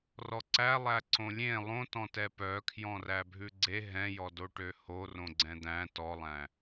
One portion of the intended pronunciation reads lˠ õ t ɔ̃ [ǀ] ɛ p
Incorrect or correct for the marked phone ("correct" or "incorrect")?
incorrect